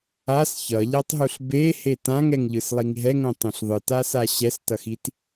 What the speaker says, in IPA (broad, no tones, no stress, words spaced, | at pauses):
as çʌʎatˤɦuɬ behe tãŋɛŋʎɯslˠiŋ ɦɛŋõtˤũɬ ðˤɯtasa ɕɛstʌxit